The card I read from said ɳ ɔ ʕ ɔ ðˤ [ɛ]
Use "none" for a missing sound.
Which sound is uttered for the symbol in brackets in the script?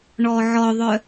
œ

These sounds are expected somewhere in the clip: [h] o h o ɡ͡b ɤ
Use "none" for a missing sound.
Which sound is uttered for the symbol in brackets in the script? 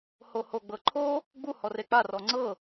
h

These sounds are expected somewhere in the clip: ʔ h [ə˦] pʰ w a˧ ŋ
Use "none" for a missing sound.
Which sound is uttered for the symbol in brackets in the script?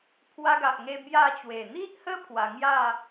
ə˦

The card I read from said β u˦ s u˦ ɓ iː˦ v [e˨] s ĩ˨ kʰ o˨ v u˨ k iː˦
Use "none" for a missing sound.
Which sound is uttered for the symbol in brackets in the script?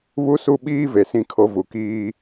e˨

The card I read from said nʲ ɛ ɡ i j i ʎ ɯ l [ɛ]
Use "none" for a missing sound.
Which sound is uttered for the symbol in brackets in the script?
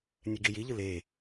e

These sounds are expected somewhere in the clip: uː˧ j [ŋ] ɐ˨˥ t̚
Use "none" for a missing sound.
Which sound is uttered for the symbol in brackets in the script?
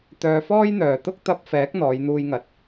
ŋ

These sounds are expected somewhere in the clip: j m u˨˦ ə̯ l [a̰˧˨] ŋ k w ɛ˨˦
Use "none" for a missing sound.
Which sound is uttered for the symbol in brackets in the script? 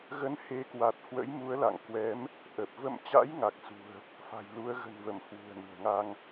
a̰˧˨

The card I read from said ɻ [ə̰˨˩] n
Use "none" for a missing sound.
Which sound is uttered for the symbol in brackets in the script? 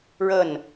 ə˥˨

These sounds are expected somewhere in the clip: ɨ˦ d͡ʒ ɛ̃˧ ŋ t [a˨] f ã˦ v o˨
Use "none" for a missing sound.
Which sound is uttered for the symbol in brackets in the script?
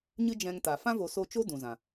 a˨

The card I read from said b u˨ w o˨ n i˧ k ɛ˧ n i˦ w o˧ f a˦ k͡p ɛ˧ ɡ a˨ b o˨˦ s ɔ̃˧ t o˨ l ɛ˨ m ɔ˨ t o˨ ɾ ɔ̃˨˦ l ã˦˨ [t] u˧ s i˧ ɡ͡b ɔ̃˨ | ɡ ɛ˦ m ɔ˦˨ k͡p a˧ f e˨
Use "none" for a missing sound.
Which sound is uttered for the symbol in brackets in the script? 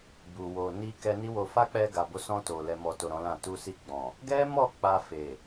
t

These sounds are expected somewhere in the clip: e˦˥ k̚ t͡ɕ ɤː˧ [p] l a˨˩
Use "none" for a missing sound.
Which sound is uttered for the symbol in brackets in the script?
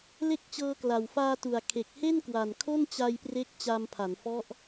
k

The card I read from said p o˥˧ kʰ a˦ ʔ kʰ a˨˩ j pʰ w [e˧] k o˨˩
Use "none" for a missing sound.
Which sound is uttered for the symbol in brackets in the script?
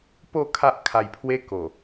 e˧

